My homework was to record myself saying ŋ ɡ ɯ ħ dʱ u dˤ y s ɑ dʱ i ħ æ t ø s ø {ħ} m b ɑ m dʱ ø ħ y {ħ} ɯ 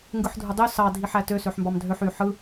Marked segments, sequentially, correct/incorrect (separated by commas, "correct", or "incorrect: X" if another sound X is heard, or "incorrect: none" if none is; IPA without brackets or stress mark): correct, correct